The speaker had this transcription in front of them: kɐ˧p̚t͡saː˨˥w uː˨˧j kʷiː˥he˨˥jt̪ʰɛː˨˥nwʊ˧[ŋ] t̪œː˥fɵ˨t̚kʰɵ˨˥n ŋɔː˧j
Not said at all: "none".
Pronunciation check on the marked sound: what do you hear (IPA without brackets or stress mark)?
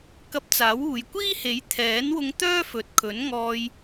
ŋ